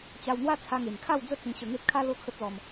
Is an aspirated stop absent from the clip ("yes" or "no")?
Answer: no